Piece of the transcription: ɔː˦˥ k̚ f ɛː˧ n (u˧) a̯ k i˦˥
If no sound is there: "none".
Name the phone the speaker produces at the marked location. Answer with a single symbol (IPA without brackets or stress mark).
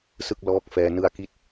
ɯ˧